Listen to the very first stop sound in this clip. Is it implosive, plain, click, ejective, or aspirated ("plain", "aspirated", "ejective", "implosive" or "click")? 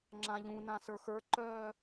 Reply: click